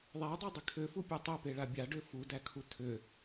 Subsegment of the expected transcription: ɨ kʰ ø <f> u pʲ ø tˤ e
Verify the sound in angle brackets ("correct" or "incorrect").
correct